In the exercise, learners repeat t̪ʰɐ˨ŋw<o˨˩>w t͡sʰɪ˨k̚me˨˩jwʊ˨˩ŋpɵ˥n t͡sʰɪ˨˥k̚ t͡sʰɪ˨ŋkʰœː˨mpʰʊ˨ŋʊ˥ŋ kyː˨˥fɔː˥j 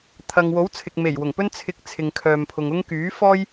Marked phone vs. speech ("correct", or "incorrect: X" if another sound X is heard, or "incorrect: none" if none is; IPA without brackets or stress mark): incorrect: o˨˥